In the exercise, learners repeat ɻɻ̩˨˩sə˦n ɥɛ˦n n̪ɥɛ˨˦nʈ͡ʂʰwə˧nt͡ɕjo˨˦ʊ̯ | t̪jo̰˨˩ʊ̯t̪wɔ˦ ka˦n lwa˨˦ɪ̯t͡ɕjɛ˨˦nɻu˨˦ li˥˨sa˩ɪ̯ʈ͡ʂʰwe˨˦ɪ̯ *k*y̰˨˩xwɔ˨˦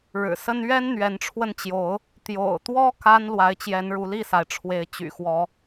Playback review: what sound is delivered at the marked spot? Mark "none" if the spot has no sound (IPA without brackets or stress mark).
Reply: t͡ɕ